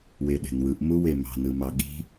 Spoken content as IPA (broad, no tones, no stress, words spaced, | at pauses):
weɗe̤nwɯʔ muwemɑ̤ nɯmɑɠi̤